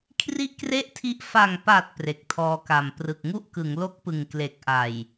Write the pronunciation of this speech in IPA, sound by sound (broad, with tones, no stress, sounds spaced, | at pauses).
kʰ r i˥˩ ʔ k r e˥˩ ʔ tʰ i˦˥ ʔ f a˨˩ ŋ p a˨˩ t̚ p r e˨˩ k̚ tʰ ɔː˧ k a˨˩ m p r ɯ˨˩ k̚ ŋ u˥˩ ʔ k ɯ˩˦ ŋ l o˦˥ k̚ p ɯ˨˩ ŋ k l e˨˩ k̚ ʔ a˨˩ j